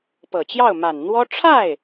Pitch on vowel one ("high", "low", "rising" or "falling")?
low